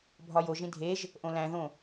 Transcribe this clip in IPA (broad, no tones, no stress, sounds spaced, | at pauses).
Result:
bʱ ɒ j o ʒ ĩ dʱ e ʒ | ʔ õ l æ̃ ð õ